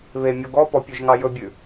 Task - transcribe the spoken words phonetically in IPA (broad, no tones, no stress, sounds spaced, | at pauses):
β e mʲ o ɡ ɔ p ɔ pʲ ø ʒ ŋ ɑ j ɵ bʲ ʉ